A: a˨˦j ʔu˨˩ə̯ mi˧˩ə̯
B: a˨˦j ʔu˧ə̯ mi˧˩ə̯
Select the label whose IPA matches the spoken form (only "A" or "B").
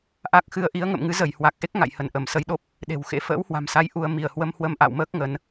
B